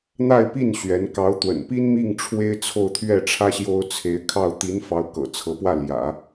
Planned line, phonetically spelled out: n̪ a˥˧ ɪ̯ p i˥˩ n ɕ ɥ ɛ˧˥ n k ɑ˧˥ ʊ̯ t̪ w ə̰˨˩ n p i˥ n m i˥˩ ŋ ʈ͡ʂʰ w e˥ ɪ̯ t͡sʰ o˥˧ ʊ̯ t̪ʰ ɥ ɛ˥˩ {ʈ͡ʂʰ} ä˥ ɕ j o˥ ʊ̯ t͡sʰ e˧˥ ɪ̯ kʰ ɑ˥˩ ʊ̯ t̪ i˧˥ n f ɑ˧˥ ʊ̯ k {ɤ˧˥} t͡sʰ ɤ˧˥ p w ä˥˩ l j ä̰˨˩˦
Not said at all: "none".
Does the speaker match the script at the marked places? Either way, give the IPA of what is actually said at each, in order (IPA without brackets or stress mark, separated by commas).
ʈ͡ʂʰ, ɤ̰˨˩